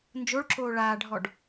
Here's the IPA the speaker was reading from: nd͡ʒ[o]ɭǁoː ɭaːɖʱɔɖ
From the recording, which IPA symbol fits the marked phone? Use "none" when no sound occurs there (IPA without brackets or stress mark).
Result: o